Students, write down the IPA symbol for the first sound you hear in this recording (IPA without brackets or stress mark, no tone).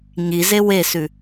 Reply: ɲ